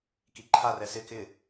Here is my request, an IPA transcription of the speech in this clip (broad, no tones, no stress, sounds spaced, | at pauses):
k i ǃʰ a r ɛ s ɪ k ɪ